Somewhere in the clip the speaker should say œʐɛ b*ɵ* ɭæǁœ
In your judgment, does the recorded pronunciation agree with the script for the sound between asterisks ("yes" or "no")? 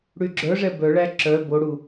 no